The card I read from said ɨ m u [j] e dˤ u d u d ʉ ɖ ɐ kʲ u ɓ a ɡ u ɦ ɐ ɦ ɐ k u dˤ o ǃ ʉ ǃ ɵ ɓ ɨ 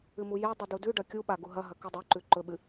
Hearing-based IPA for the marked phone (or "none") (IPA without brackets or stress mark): j